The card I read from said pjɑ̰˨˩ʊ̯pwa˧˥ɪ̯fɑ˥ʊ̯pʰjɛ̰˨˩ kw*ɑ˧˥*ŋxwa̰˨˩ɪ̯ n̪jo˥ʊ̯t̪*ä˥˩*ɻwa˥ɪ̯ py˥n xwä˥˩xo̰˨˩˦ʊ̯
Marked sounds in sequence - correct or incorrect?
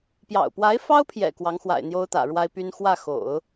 correct, incorrect: ä̰˨˩

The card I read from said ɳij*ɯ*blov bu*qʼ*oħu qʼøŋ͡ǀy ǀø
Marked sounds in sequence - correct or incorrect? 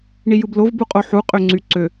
correct, correct

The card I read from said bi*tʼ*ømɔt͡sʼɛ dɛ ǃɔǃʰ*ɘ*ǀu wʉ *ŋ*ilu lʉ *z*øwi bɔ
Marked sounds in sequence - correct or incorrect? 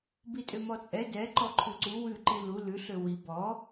correct, incorrect: ʉ, incorrect: ǃ, incorrect: ɬ

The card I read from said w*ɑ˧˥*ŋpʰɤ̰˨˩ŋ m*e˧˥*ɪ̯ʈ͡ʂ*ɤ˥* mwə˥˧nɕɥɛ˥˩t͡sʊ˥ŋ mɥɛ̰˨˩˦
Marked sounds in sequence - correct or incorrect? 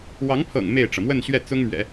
correct, incorrect: e˥˩, incorrect: ɤ˩

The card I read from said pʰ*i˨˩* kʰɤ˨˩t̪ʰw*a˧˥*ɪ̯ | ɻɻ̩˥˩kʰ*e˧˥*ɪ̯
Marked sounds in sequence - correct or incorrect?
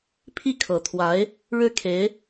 incorrect: i˥˩, correct, correct

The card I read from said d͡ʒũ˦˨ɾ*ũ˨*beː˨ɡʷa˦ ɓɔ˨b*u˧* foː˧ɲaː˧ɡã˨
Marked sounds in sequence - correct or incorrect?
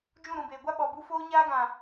correct, correct

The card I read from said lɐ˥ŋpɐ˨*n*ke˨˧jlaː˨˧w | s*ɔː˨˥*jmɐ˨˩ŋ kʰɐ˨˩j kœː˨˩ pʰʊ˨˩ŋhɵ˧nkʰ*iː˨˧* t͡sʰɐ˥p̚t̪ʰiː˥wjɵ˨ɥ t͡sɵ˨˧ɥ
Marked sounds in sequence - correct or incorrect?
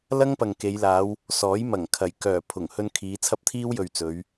incorrect: ŋ, correct, correct

